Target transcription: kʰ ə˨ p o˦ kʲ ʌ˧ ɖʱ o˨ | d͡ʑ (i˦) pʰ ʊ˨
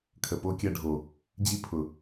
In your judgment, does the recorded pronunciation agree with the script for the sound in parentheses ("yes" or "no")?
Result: yes